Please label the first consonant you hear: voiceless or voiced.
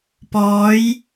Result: voiceless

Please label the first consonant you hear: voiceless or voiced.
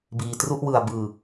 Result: voiced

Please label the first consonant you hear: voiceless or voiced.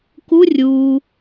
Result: voiceless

